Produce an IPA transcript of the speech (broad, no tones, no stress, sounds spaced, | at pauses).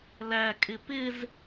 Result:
l æ kʼ ɪ p ɪ z